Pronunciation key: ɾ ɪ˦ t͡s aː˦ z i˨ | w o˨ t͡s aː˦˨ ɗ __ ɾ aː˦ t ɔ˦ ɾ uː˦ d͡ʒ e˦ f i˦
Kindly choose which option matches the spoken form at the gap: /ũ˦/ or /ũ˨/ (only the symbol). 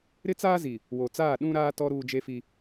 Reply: ũ˦